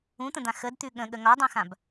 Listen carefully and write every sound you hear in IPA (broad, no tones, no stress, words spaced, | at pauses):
ũt̪ə̃d̪ã xədt̪ʉ ɠə̃ɠə ŋɒdˤũxãb